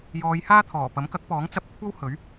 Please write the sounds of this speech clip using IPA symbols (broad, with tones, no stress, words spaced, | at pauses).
jɔː˨˧jhaː˥ t̪ʰɔː˨˩pɐ˨˥mkɐ˨˥k̚pɔː˨˥ŋ t͡sɐ˧p̚kʷʰɐ˥w hɵ˨˥ɥ